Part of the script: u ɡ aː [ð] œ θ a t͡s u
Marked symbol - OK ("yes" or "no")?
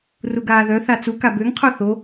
yes